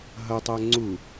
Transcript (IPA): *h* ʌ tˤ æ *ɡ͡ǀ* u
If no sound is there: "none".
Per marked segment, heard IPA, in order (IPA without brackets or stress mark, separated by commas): ɦ, ŋ͡ǀ